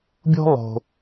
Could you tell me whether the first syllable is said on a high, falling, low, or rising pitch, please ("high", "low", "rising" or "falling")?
high